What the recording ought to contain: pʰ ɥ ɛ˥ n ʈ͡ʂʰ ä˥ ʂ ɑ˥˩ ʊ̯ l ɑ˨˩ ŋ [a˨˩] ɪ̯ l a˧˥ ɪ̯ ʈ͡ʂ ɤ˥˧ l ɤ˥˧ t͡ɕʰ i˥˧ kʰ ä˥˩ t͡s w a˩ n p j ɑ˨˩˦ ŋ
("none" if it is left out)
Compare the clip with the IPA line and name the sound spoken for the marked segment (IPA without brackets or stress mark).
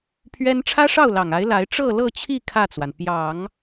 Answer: a˧˥